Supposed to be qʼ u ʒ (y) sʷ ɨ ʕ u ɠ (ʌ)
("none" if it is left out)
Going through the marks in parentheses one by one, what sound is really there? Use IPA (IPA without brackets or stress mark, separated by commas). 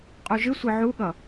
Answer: ɨ, ʌ